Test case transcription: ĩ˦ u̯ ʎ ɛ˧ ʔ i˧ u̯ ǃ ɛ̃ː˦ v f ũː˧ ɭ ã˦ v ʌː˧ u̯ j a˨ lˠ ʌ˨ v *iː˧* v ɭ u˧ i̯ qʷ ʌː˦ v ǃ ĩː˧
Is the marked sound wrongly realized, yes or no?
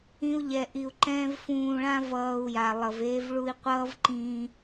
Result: yes